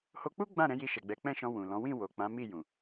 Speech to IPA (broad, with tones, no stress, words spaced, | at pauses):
ho˧k͡pu˦ ɡ͡bã˦˨ ɾɛ̃˨˦ji˧ʃɛ˨ɡ͡bɛ˨˦ k͡pɛ̃˦˨ʃɔ̃˧ wũ˨lɔ̃˨˦ wĩ˦˨ wo˨k͡pã˨˦ mi˦˨jũ˨